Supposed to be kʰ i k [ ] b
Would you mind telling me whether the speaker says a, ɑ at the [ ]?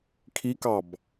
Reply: ɑ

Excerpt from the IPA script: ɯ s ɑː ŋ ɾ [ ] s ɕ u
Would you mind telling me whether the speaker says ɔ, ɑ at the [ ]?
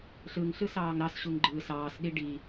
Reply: ɑ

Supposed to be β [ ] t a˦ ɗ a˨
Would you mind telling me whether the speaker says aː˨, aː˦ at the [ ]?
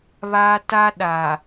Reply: aː˦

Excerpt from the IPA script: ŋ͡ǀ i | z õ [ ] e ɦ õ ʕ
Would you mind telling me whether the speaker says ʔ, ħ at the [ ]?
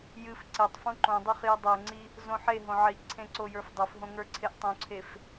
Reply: ħ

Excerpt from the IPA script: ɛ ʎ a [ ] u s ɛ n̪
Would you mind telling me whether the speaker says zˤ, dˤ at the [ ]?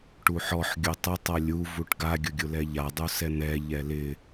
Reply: dˤ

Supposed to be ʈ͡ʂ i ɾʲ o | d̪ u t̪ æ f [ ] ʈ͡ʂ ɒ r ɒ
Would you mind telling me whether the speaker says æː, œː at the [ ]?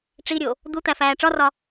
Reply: æː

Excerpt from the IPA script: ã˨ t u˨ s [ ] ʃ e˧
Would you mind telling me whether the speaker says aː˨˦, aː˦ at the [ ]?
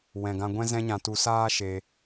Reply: aː˦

